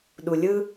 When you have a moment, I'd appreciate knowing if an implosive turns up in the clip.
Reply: yes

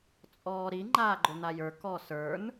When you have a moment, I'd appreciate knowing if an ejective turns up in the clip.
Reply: yes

